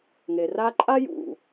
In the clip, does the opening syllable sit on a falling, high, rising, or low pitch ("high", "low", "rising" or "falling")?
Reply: low